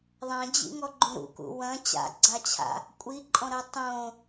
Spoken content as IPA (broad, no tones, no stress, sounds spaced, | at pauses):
ðˤ ɐ̃ d͡ʑ ḭ ŋ ɔ ɡ͡ǃ ũ ɾ ṵ k ṵ w ɐ̃ t͡ɕ a̰ ɡ͡ǀ a t͡ɕʰ a̰ | kʷʼ i ǃʼ ɔ̃ ɾ ɐ tˤ õ